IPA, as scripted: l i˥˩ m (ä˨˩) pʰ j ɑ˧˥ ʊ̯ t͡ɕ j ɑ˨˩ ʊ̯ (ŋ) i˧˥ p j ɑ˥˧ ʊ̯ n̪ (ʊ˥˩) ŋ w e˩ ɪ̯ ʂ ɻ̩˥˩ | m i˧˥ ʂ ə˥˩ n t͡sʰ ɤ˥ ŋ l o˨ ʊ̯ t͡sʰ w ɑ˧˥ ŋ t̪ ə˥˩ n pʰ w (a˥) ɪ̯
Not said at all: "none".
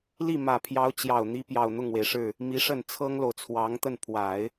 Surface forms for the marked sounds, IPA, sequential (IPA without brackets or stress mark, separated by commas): ä˨˩, n̪, ʊ˥˩, a˨˩˦